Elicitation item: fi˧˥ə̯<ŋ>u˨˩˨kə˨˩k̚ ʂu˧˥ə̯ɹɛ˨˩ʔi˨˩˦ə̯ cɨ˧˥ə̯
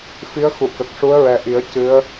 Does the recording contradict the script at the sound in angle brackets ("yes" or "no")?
yes